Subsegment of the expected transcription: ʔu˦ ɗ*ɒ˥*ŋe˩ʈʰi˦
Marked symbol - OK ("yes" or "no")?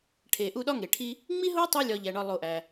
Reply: yes